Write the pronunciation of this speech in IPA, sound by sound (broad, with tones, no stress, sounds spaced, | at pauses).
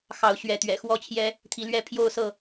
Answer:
x ɑ˨˦ ʊ̯ ɕ ɥ ɛ˨˦ t̪ ɥ ɛ̰˨˩ x w ɔ˥˨ t͡ɕʰ j ɛ˦ | t̪ʰ i˨˦ l ɥ ɛ˥˨ pʰ j o˥˨ ʊ̯ s ɤ˥˨